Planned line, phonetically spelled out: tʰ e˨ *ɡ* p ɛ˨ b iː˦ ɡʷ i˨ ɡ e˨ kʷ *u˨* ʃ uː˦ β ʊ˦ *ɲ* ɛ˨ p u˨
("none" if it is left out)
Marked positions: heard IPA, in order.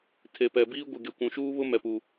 none, ũ˨, m

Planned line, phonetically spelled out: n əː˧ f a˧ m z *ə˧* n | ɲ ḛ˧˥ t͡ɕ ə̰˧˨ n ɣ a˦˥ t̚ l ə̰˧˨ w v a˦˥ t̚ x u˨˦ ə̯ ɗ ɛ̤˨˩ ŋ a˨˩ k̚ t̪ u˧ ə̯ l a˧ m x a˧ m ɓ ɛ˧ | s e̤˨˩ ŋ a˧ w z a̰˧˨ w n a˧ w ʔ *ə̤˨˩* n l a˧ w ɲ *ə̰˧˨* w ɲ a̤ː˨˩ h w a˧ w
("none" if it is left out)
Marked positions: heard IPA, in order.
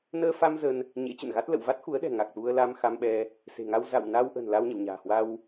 ə˧, ə̤˨˩, ə̰˧˨

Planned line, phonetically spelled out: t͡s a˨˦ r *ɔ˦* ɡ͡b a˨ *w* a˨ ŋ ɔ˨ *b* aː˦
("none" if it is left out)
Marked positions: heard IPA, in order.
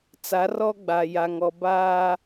ɔ˦, j, b

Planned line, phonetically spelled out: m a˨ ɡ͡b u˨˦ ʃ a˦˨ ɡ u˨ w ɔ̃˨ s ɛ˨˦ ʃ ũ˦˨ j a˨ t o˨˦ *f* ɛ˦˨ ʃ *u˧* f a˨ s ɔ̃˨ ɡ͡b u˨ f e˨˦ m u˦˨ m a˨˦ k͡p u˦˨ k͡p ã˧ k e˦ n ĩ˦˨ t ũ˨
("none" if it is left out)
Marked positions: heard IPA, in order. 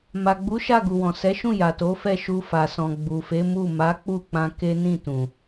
f, u˧

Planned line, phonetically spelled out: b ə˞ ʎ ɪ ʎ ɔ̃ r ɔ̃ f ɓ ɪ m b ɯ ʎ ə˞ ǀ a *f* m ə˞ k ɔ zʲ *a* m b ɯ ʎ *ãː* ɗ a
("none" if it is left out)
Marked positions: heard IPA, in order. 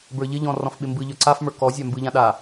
f, a, ã

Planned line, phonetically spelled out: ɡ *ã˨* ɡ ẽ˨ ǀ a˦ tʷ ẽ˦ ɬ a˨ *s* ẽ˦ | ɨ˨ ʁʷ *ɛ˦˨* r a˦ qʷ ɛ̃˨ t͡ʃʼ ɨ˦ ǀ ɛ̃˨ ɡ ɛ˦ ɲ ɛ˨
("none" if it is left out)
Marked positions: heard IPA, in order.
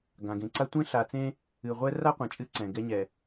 ã˨, t͡s, ɛ˦

